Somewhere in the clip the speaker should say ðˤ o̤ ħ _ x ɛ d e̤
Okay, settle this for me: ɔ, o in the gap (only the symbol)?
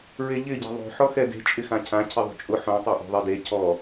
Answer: ɔ